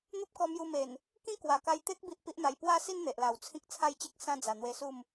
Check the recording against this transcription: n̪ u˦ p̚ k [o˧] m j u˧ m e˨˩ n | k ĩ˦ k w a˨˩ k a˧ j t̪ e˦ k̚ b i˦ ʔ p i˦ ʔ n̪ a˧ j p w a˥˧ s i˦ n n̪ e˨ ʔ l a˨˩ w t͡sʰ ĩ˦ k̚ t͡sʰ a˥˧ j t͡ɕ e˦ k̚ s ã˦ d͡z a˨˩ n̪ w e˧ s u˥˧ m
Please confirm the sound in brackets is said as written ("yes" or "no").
no